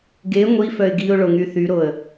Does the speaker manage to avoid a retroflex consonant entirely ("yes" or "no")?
no